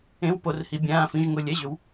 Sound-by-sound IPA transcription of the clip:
ẽ˧˥˧ w p o˨˦ r h i˨˦ bʲ ãː˧˥˧ f ĩ˧˥˧ ʒ ŋ ʊ˧˥˧ lʲ ɛ˧˥˧ ʑ ʏ˨˦ w

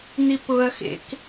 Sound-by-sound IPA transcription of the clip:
n̪ i p ʊ ɐ̯ x ḛ k

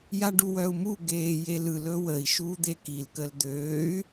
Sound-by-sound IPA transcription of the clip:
j a ɖ u w œ u̯ m u ɡ eː j e l ɯ l ɵ w ə i̯ ʃ uː d̪ e k i l k ə l d̪ øː y̯

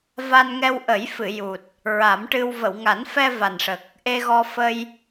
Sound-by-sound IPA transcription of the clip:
v a˧ n ŋ ɛ˧ w ʔ ə˨˩˦ j f ɨ˨˩˨ j u˨˩ t̚ | ɹ a˨˩˦ m ʈ ɨ˧ w v ə˨˩˨ w ŋ a˨˩˦ n f ɛ˧ v a˨˩ n ʂ ə˨˩ k̚ | ʔ e˧ ɣ ɔ˧ f ə˧ j

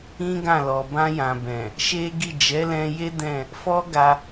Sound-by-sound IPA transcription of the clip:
ĩ˦ ɡ ã˦˨ l ɔ˨ b ã˧ j ã˨ b ɛ̃˨ | ʃ e˦ ɡ i˦˨ d͡ʒ ɛ˨˦ l ɛ̃˧ j e˦ d ɛ̃˦˨ | f ɔ˦ ɡ a˧

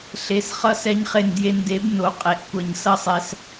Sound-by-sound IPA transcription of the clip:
ɬ e˩˧˩ s χ ʌ˧ s ɛ˧ ɲ χ e˧˩ n d j e˧ n d e˨˥ b n o˩˧˩ qʼ e˩˧˩ ʔ kʷ ʌ˧˩ ɲ s ʌ˥˩ sˤ ɛ˧ s

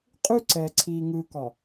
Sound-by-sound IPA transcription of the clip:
qʼ ʉ˦ ǀ ɛː˨ ǀʰ iː˨ ŋ ɯː˨ k ɒ˨

